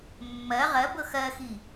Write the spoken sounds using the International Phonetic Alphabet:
mː ɜ ʁ ɜ b ɤ x ɜ x i

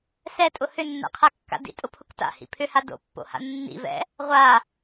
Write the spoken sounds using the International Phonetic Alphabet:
s ɛ tʼ ʊ h ʏ nː a̰ qʰ a kː a̰ d ḭ tʼ ʊ pʰ ʊ k t a̰ h ḭ pʰ ʏ h a d o̰ pː o̰ h a̰ nː ḭ v ɛ̰ | ʁʷ a

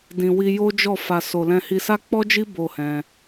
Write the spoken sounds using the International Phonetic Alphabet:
d ĩ˨ w i˧ j o˦ d͡ʒ ɔ˦˨ f a˨ s o˨ l ɛ̃˧ h i˧ s a˦ k͡p ɔ˦ d͡ʒ i˦ b o˦˨ h ɛ̃˧

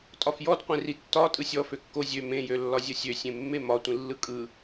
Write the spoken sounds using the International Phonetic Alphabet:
tʼ ɒ f j ɔ d qʷ ẽ r i tː ɒ tʼ ɯ sʲ ɔ f ø kː o zʲ ø m ẽ j ø lː ɒ zʲ ʌ sʲ ø sʲ ẽ mː e m ɒ tʷ ĩ lː ɯ kʼ ɯ

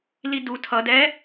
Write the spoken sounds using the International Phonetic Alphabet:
l i d u tʰ ʌ d ɛ

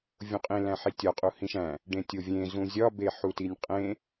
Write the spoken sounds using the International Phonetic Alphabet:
vʲ õ qʼ ĩ l æ̃ ħ i tʲ ɒ qʼ u h ĩ ʃ æ̃ | ɖ ẽ tʲ o vʲ ẽ z ũ zʲ ɒ b e ħ u t i nʲ qʼ ẽ

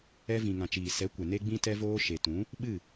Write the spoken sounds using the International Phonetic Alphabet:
ɛ˧ v ĩ˨ ŋ ã˨ t͡ʃ iː˨ s ɛ˨˦ kʷ ɛ˨ n e˦ ɡ͡b ĩ˦ t ɛ˦ v oː˧ ʃ e˨ t ũ˨˦ | ɓ ɨ˦˨

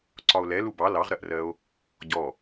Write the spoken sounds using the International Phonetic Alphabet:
ǀ ɒ o̯ l ɛ l u b ɑ l ɑ ʁ ɾ ɜ ʔ r ɜ o̯ | ɟ ɔ

